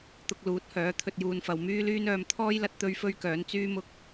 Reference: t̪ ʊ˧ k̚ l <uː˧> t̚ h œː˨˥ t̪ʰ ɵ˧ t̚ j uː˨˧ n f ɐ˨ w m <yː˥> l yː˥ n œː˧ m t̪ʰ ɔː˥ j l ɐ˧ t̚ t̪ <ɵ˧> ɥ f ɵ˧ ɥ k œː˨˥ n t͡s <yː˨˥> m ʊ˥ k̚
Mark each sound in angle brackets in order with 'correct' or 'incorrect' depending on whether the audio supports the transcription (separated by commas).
incorrect, correct, correct, incorrect